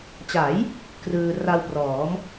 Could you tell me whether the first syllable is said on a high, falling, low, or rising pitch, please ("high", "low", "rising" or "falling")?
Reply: rising